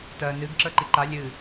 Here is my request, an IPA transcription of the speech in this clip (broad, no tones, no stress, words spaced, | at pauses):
tɜ nɨɡ ǁə˞ǃiǃa lʲɨ